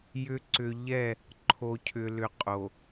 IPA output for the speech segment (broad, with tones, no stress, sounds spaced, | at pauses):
j ʏ˨ ǀ ʏ˨ ʎ ɛ˦˨ | ǃʰ o˨ cʰ ʏ˨ l ʏ˨ qʼ o˨